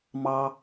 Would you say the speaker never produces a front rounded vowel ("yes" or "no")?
yes